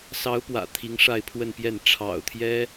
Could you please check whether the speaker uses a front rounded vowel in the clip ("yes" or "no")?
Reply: no